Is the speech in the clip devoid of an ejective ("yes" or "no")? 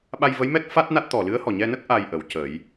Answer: yes